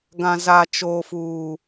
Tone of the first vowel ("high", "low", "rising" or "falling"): low